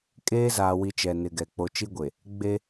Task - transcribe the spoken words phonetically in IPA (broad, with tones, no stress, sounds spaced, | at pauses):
kʼ eː˦ z aː˨ w i˨ t͡ʃ ɛ˨ n ɪ˨ ɡ ɛ˨ k͡p o˨ t͡ʃ i˦ ɡʷ e˨ | ɡ͡b e˦